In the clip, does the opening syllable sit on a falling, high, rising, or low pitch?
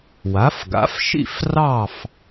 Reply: rising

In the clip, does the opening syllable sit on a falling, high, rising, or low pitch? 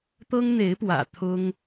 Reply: high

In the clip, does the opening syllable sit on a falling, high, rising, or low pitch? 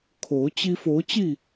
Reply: rising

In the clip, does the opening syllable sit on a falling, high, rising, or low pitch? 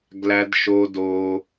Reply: high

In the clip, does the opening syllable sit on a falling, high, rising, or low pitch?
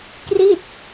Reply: falling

